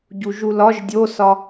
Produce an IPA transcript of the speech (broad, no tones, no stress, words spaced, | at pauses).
ɟuʒulɒʒ dʲosɒ